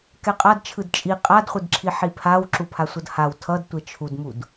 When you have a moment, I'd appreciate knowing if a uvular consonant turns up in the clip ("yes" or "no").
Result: yes